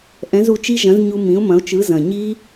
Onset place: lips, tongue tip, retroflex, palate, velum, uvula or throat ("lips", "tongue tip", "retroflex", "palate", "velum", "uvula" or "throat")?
throat